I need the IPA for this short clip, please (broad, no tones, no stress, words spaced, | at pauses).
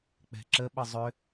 k͡pɛ̤ǁəɓə zˤʏ